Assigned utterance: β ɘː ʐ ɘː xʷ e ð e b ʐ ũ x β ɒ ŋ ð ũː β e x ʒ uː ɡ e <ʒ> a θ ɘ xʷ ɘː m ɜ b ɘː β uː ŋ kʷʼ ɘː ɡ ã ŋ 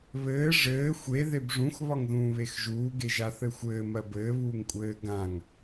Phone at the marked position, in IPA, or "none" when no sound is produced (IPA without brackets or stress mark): ʒ